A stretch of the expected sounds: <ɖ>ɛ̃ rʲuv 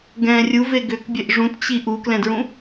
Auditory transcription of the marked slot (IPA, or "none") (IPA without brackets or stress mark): ɡ